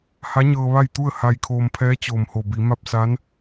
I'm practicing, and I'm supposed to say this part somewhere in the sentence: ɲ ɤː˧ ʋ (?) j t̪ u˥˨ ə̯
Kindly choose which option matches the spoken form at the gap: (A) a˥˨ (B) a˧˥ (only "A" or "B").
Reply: A